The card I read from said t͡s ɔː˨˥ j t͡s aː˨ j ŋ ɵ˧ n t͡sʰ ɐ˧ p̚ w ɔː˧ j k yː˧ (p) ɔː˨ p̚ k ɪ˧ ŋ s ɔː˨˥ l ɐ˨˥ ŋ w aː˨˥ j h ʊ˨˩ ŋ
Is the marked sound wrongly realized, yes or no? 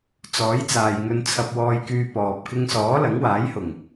no